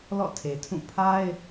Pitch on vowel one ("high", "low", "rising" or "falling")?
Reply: falling